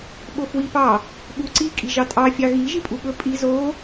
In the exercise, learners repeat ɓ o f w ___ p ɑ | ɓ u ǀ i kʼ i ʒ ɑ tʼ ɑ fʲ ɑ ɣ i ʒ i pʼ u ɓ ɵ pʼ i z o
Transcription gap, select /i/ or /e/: i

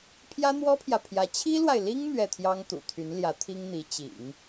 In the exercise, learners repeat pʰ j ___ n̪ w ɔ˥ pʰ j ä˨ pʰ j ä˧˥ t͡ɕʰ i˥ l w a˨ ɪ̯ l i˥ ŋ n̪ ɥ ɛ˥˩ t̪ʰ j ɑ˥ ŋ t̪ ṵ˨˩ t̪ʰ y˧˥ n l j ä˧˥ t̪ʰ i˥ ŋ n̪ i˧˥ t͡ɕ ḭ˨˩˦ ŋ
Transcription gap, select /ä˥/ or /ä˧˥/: ä˥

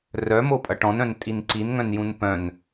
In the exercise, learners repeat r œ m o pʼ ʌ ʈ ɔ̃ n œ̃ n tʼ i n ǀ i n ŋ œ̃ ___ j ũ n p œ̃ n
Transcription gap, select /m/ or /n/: n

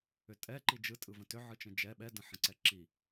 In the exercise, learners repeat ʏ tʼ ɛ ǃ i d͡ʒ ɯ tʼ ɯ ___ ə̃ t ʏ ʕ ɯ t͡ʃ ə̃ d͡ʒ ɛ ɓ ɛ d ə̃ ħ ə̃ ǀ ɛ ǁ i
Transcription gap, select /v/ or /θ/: v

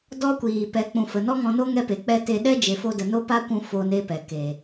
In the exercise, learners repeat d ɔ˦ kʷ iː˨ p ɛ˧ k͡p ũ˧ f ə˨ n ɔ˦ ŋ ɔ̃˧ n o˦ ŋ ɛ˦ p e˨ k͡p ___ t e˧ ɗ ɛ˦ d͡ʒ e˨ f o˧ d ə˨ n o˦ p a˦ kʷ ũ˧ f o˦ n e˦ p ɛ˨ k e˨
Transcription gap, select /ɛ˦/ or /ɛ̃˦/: ɛ˦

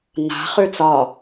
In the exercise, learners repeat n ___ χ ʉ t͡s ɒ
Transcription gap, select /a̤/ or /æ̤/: a̤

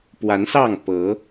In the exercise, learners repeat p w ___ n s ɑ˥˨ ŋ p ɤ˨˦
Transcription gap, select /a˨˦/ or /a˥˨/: a˨˦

